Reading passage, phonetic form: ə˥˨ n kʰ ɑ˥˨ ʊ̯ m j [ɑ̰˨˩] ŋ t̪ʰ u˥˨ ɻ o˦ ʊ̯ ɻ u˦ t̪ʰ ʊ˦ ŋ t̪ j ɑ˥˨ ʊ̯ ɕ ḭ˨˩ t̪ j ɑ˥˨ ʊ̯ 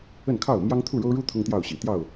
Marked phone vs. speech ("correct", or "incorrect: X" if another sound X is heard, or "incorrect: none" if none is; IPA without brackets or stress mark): incorrect: ɑ˦